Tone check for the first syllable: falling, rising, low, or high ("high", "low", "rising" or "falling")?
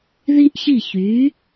high